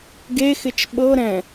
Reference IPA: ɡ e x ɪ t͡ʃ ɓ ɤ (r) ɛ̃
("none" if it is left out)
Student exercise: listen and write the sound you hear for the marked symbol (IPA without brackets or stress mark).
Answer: ɾ